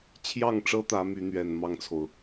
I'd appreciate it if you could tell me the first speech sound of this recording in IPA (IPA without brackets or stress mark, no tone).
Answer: t͡ɕʰ